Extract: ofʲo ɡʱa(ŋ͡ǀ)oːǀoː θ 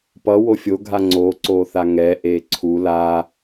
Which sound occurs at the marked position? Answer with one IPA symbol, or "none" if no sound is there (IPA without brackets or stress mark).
ŋ͡ǀ